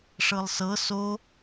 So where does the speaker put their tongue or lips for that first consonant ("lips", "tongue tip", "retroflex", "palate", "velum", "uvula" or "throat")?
retroflex